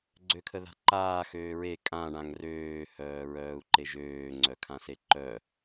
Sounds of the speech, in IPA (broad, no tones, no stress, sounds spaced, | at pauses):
ɡ͡ǀ ø kʰ ə ð a̤ ǃ aː x øː ɹ e kʼ ã ɳ ã ŋ r øː h œː ɹ œː u̯ ǃ e ʒ øː ŋ͡ǀ œ kʰ ã s e ǃ œ